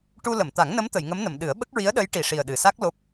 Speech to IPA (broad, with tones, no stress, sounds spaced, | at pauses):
ʈ u˧ l ə˨˩˨ m t̪ a˨˩˦ ŋ n ə˧˥ m t̪ ə˨˩˨ j ŋ ə˧˥ m n ə˨˩˨ m ɗ ɨ˨˩˦ ə̯ ɓ ə˦˥ k̚ ɹ i˧˥ ə̯ ɗ ə˧˥ j ʈ i˨˩ ʂ i˨˩ ə̯ ɗ ɨ˨˩ s a˦˥ k̚ l o˦˥ p̚